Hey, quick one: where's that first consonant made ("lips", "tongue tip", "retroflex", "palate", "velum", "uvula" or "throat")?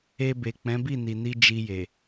lips